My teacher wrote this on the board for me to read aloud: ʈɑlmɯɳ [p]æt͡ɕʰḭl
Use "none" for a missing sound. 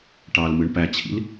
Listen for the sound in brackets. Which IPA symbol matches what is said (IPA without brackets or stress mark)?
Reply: p